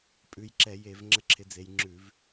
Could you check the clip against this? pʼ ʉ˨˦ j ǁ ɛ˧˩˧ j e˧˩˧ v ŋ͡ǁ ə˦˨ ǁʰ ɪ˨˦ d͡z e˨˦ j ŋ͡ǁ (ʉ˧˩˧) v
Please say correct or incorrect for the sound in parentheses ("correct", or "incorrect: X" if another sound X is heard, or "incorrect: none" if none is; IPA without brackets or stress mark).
correct